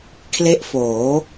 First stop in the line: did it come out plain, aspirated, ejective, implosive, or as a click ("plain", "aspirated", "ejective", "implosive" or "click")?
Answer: aspirated